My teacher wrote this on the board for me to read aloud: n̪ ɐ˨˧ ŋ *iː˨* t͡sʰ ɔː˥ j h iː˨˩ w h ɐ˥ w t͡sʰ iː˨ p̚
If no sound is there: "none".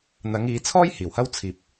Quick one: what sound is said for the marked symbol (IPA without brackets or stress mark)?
iː˨˧